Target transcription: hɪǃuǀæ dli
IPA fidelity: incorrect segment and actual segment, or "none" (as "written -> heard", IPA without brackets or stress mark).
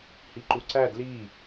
ɪ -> i